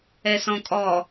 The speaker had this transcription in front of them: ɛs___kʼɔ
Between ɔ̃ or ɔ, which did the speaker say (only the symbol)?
ɔ̃